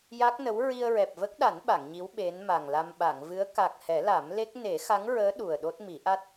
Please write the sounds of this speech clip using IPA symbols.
j a˦˥ k̚ n ə˧˥ w ɹ i˧ ə̯ ɹ ɛ˨˩ p̚ v ə˦˥ k̚ ɗ a˨˩˦ n ɓ a˨˩˨ ŋ ɲ i˧˥ w ɓ e˧˥ n m a˨˩ ŋ l a˧ m ɓ a˨˩˨ ŋ v ɨ˧˥ ə̯ k a˨˩ k̚ h ɛ˨˩˦ l a˨˩˦ m l e˦˥ k̚ n e˨˩˦ x a˧˥ ŋ ɹ əː˧˥ ɗ u˨˩ ə̯ ɗ o˦˥ t̚ m i˨˩˦ ʔ a˦˥ t̚

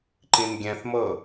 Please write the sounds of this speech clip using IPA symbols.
ǃ ĩ n ɡʲ ɛ̃ θ m ɤ

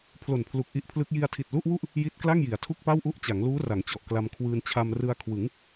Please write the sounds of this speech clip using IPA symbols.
pʰ l o˨˩ n pʰ l u˨˩ k̚ ʔ i˦˥ ʔ pʰ l ɯ˦˥ k̚ j i˧ a̯ tʰ i˨˩ t̚ l u˥˩ ʔ w u˥˩ ʔ | j i˦˥ t̚ k l a˥˩ ŋ j i˩˦ a̯ tʰ u˥˩ k̚ p a˥˩ w ʔ u˥˩ ʔ t͡ɕ a˩˦ ŋ l uː˦˥ r a˩˦ ŋ t͡ɕ ɔ˨˩ ʔ k l a˧ m kʰ w ɯː˧ n t͡ɕʰ a˧ m r ɯ˧ a̯ kʰ w ɯ˩˦ ŋ

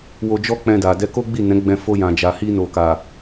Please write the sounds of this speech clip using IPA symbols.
w o˧ d͡ʒ ɔ˦ k͡p ɛ̃˧ d a˨ d ɛ˧ k o˦ ɡ͡b i˦˨ n ɛ̃˨˦ ɡ͡b ɛ̃˧ f o˧ j ã˨ d͡ʒ a˨ h i˧ n o˨ k a˨

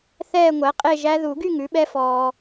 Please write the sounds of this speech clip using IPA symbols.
θ ɛː˥˧ ŋʷ æ˩˥ qʼ e˥˧ ʒ æ˦˥ ð u˨˩˦ ɡ y˥˧ ŋ ʉ˩˥ ɓ ɛ˦˥ f ɔː˨

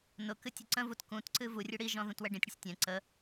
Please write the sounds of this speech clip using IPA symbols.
n ʊ k ɨ tʲ ʊ ǀ ə̃ v u t k ũ t ǀ ɨ v u rʲ ɨ ɽ i ʒ ɔ̃ ð ũ t w ɛ ɖ ĩ tʲ ɽ ɨ sʲ tʲ ɛ̃ ǀ ə

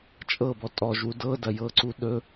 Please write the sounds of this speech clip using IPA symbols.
t͡ʃʼ ɤ b ɔ tʼ ɔ ʒ w u d ɤ d ɐ j ɤ ǀ u ɗ ɵ

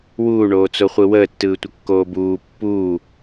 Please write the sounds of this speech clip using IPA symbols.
w uː ɳ oː t͡s o χʷ ɯ w əː tː ɯː tʷ ə kː oː b uː pː uː

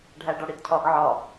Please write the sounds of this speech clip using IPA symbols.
ɖʱ æ ɖ ɒ ɽ i d cʰ ɒ ɡ ʕ ɒ

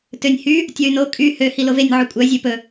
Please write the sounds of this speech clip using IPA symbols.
t ø nʲ h y | tʲ ɔ y̯ n o kʼ y h ø h i l o v e nʲ ʕ u kʷʼ œ zʲ o p ɵ

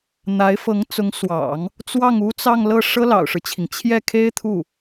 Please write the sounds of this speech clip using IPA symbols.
n̪ a˧˥ ɪ̯ f ɤ˧˥ ŋ t͡s ʊ˧˥ ŋ s w ɑ̰˨˩˦ ŋ | t͡s w ɑ˥˩ ŋ u˥ t͡s ɑ˥˧ ŋ l ɤ˥˩ ʂ ɤ˥ l ɑ̰˨˩ ʊ̯ ʂ ɻ̩˦ t͡ɕʰ i˩ ŋ t͡ɕʰ j ɛ˥˩ kʰ e˥ ɪ̯ t̪ʰ u˥˩

